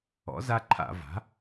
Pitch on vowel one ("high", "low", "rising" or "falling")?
rising